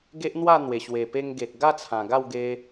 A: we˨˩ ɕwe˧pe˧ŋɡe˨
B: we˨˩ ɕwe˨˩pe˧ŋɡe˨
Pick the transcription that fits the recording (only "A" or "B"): B